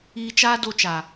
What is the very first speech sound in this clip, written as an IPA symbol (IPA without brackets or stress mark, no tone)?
iː